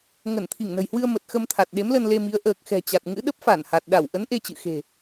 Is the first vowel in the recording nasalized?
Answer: no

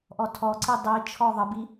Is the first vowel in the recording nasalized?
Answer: no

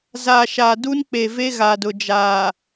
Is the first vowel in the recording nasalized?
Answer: no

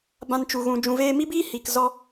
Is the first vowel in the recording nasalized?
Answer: yes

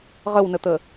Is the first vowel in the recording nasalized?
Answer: no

